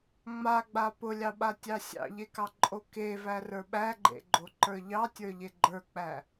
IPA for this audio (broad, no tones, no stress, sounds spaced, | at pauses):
ŋ͡m a ɡ͡b a p ʊ lʲ ɑ ɓ a tʲ ɑ sʲ ɑ̰ ʎ e k ɑ ǃʼ o k e v æ r ə˞ ɓ æ ɡ͡ǃ ḛ ɡ͡ǃ o ǃ ə˞ ʎ ɑ tʲ ə˞ ʎ e ɡ͡ǃ ə˞ k͡p æ